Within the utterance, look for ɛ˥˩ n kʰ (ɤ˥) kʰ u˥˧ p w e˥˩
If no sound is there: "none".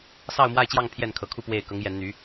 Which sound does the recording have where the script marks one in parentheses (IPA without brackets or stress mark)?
ɤ˧˥